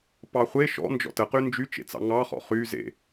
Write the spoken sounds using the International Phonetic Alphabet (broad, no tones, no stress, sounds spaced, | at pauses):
p ɑ χʷ e ʃ ɔ̰ n d͡ʒ ɔ̰ t ə q y n d͡ʒ y t͡ʃ ḛ t͡s ɑ̰ ŋ ɑ χ ɔ̰ χ y z ḛ